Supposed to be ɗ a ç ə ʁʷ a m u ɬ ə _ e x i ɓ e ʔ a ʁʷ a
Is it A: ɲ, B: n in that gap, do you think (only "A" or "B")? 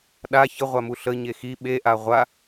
A